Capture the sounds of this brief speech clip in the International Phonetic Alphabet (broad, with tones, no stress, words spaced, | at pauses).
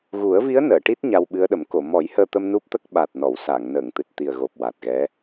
ɣu˨˩˦ə̯vi˧˥ə̯ nəː˨˩˨ʈi˦˥t̚ ɲa˧wɓɨ˧˥ə̯ɗə˨˩˦m ko˨˩˨ mɔ˨˩˦j həː˧t̪ə˧m nu˦˥p̚t̪ə˦˥k̚ ɓa˨˩t̚nɔ˨˩˨w sa˨˩˨ŋ nəː˨˩˨ŋt̪ɨ˨˩t̚t̪i˨˩ə̯ɣo˨˩p̚ wa˨˩t̚ɣɛ˧˥